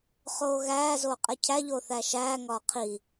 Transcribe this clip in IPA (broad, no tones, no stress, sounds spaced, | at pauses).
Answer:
χ oː ɣ æː z oː qʼ e cʰ æ ʎ oː θ æ ʃ æː ŋ ɒː qʰ i